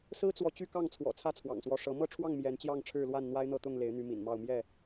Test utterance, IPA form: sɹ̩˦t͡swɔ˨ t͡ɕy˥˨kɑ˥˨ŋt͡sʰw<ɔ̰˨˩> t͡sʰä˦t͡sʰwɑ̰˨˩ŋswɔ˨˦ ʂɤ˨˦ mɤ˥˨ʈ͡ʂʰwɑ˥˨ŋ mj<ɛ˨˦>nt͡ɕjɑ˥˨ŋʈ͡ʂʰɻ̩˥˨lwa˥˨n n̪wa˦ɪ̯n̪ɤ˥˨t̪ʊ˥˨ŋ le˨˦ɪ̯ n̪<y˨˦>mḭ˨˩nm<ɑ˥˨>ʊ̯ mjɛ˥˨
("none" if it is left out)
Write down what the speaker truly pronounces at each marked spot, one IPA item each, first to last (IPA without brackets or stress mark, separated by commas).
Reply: ɔ̰˨˩, ɛ˨˦, y˨˦, ɑ˥˨